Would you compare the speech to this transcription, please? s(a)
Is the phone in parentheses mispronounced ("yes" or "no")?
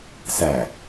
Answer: yes